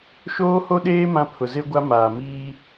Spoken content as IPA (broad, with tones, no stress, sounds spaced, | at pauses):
ʃ oː˦ h o˦ ɗ eː˦ m ã˦ pʰ ʊ˨ z e˦ ɡʷ a˦ m aː˨ m iː˦